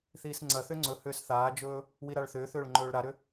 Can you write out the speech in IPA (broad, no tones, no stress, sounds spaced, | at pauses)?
θ iː s ŋ͡ǀ ɐ θ ʏ ŋ͡ǀ ɵ h ʏː s θ aː d͡ʒ ɵː | w i ɾ a ɭ θ ʏː θ ʏː ɭ ŋ͡ǃ ɵː ɭ ɾ a ɾ ʏ